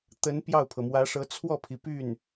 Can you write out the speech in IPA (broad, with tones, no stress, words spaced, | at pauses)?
t̪ə˧˥n pjɑ˥˩ʊ̯pʰɤ˩mwä˧˥ʂɤ˧˥ t͡sʰwɔ˥˩pʰi˩py˥˩n